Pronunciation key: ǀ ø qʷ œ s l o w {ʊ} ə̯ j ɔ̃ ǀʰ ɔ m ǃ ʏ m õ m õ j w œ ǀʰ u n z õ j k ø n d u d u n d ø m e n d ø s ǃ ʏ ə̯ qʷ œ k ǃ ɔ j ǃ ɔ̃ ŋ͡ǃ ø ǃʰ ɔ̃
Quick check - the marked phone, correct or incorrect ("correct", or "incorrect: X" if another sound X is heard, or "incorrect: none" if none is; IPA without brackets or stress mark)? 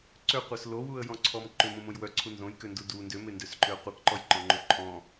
incorrect: u